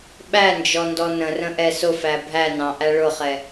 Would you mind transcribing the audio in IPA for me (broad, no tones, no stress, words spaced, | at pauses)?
ɓænd͡ʒɔ ndɔnə̃rə̃ ʔɛsʊfæ bʱæ nɑ̃ʔæ ɭʊχɛ